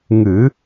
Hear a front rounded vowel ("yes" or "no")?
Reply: no